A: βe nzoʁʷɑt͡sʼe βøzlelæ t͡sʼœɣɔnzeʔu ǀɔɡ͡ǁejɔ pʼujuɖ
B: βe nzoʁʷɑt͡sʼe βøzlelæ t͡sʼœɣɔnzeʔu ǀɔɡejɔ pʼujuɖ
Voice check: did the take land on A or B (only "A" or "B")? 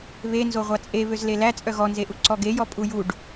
B